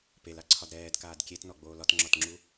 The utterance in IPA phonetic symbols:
p e l a ǀʰ ɒ d ɾ ɛː d k aː d kʲ e t n ɔ ɡ͡b oː l ɒ t ŋ͡ǁ ɒ t ŋ͡ǁ u

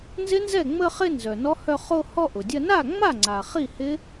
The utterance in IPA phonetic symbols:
n z ɪ˦˥ n z ɛ˥˩ ŋ͡m ə˥˧ χ ɪ˥˧ n z œ˩ n ɔ˦˥ h œ˥˧ χ o˥˧ h ɔ˥˧ ʔ ʊ˩ dʲ ɐ˥˧ n a˥˩ ŋ͡m a˥˩ ŋ͡ǀ a˩ χ i˥˩ h ɪ˦˥

